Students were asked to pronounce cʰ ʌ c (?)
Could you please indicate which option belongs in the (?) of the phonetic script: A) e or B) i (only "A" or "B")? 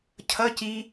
B